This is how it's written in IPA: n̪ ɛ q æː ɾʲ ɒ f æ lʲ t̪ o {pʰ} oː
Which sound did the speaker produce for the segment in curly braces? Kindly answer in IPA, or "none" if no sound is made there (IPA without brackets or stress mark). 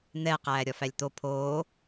pʰ